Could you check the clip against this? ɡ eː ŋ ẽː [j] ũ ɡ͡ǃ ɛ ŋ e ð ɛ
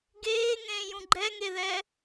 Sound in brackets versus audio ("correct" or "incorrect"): correct